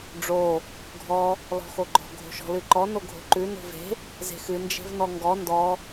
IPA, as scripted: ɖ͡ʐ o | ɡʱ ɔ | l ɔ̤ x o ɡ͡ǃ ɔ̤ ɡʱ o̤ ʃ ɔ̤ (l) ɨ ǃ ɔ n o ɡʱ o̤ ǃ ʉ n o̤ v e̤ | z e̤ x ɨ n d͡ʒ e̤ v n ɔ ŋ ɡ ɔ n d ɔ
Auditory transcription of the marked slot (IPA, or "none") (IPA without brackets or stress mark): l